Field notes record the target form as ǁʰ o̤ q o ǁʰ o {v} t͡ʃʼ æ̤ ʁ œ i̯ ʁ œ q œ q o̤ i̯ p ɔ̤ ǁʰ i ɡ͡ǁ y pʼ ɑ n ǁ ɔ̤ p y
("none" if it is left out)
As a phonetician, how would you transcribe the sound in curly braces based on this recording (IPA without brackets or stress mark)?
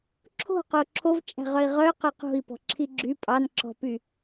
v